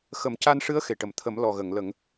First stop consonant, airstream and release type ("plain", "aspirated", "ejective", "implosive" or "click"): plain